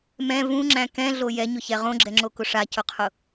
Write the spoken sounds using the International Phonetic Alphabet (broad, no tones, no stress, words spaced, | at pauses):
mɛ̃ vũŋ͡ǁæ̃ kɛ̃ɮo jɛɲʊçɛ ʁõɡ͡ǁɛŋ͡ǁokʊ ʂacʊqʰʊ